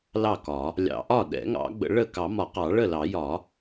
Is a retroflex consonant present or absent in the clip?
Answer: present